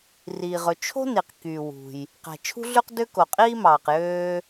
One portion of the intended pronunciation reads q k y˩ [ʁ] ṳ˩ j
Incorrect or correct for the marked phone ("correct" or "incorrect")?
incorrect